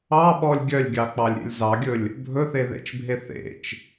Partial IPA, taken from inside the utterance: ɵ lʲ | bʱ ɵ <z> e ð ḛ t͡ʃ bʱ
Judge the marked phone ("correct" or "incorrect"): incorrect